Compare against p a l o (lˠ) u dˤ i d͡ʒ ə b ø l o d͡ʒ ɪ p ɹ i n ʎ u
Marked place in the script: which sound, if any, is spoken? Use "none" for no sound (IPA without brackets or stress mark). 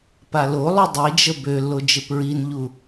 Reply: lˠ